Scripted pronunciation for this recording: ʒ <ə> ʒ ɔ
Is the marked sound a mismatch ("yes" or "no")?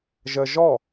no